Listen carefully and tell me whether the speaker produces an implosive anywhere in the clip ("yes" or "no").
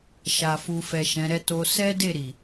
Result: no